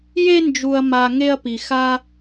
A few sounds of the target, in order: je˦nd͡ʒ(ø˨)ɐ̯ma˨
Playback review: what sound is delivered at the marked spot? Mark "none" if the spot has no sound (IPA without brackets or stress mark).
u˨